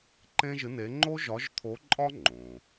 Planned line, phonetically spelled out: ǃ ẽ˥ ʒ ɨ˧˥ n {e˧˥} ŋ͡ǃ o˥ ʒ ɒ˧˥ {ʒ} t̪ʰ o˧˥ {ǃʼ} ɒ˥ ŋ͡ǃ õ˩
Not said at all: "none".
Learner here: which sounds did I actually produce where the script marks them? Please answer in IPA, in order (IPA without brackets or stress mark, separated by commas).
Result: e˧˥, ʒ, ǃʼ